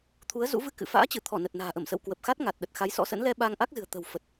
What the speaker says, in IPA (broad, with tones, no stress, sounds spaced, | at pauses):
t̪ʰ u˨˦ ə̯ z ṵ˧˥ v ɨ˧ k ɨ̰˧˨ f a̰ː˧˥ t͡ɕ ɨ˧˩ t̪ʰ ɔ˧˩ n ə˨˩ t̚ n a̤ː˨˩ ʔ ə˧˩ m s ə̰˧˨ w k w ə˨˩ p̚ x a˦˥ t̚ ŋ a˨˩ t̚ ɗ ə˨˩ t̚ x a˨˦ j s ɔ̰˧˥ s ə̰˧˥ n l ɛ˧ ɓ aː˧ ŋ ʔ a˦˥ k̚ z ɨ̤˨˩ ə̯ t̪ ə̤˨˩ w f ə˨˩ t̚